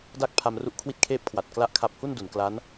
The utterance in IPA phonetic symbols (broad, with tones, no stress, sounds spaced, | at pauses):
d aː˥˩ k̚ pʰ a˧ m r u˦˥ ʔ kʰ w i˦˥ t̚ kʰ eː˥˩ p̚ kʰ w a˨˩ t̚ k l a˥˩ ʔ kʰ a˦˥ p̚ h u˥˩ n d u˩˦ n k l a˦˥ n